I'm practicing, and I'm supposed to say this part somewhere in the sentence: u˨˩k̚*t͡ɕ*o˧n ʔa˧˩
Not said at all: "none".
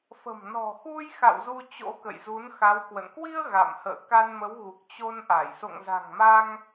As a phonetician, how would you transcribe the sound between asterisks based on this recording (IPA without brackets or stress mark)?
t͡ɕ